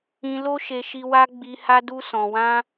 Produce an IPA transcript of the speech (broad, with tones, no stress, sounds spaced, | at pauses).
ĩ˧ l o˦ ʃ e˧ ʃ i˧ w a˦ ɡ͡b i˧ h a˦ d u˧ s ɔ̃˨ w ã˧